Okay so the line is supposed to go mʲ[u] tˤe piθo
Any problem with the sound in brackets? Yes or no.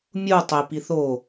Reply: no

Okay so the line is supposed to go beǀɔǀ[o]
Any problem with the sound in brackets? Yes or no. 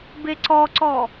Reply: yes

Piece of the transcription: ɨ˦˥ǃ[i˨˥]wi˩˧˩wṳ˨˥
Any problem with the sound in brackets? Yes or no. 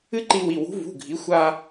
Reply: yes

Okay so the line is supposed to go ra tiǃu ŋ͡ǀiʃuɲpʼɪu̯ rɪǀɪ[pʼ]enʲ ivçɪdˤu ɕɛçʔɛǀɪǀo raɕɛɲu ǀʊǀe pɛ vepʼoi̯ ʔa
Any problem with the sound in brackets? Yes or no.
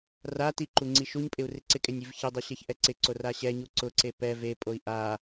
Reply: yes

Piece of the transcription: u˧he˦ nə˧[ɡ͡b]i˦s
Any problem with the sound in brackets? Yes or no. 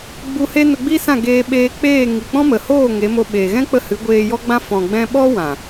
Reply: no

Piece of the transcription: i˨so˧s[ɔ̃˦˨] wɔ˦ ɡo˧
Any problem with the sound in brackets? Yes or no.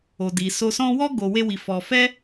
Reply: yes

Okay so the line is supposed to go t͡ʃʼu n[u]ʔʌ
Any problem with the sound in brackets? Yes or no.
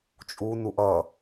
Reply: no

